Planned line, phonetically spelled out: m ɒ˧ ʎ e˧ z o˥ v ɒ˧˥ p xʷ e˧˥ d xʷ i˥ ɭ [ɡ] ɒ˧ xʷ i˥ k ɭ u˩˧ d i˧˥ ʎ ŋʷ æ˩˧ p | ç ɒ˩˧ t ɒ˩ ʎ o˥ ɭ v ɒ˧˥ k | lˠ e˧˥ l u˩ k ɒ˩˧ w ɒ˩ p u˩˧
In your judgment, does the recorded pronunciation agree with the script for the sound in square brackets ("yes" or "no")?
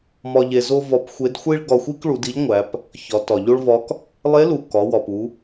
yes